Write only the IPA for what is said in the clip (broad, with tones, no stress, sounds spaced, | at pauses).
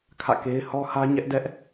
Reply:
kʰ ä̰˦˨ k e˦ ɪ̯ h ɔ˦ h ä˦ ɲ ɛ˦ ʔ d ɛ˦ ʔ